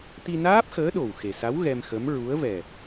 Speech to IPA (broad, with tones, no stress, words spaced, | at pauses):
t̪i˧naː˦˥p̚xəː˧˥ ɗo˨˩w xe˨˩sa˧˥w ɣɛ˧mxə˧˥m ɹu˧˥ə̯ vɛ˨˩